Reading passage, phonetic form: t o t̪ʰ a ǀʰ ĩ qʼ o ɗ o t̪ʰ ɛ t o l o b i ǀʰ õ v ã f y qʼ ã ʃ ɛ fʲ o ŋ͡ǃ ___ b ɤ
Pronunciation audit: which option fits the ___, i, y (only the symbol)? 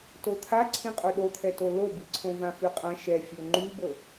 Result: y